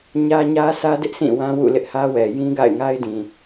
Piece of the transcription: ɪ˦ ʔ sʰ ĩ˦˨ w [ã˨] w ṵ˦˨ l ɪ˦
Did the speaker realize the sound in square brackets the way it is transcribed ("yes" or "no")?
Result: no